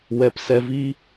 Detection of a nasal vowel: absent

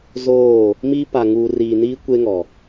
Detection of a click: absent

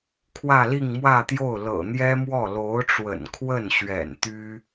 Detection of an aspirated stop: present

